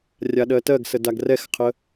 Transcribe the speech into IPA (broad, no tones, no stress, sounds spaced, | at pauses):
rʲ a ɗ ɜ t ɜ ɡ s ə d a ɡ r ɛ x qʰ ə